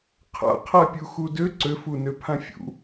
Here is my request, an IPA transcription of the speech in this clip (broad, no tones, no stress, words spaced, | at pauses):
qʰa̰qʰapʲu xudø ǀøfunøpʰã fʲṵ